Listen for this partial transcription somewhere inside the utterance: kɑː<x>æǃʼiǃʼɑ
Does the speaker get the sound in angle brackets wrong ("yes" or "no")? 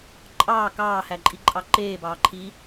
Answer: yes